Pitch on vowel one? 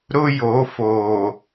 high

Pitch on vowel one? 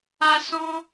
high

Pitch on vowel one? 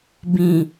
low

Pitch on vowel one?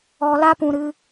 low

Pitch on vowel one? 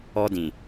high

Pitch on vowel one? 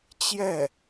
falling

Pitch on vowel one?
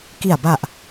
low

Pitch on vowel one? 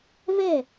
falling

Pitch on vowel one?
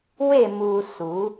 falling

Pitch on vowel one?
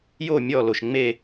falling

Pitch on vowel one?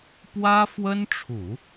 high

